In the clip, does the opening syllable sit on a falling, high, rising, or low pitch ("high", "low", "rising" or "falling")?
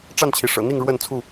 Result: falling